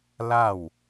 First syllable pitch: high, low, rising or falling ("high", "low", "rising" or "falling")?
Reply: falling